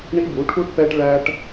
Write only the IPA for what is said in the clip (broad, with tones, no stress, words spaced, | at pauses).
ɳi˦bu˨˦ʈʰu˦ʈ pɛ˦ʈ ɭæ˦ʈ